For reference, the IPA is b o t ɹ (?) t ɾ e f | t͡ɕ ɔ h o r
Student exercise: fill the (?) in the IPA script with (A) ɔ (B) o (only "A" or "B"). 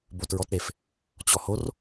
A